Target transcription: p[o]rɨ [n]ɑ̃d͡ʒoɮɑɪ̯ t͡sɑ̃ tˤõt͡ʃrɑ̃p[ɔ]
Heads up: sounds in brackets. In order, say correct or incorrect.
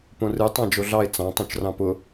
incorrect, incorrect, incorrect

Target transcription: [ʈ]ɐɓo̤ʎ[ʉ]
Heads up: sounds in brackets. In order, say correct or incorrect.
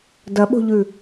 incorrect, correct

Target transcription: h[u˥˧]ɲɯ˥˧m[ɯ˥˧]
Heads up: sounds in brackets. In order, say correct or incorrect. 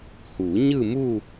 incorrect, incorrect

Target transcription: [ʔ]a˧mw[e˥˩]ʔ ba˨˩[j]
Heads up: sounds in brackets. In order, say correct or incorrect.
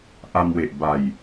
correct, incorrect, correct

